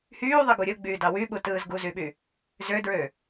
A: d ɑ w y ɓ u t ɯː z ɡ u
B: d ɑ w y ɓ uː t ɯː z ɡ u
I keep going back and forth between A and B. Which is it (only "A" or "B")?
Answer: A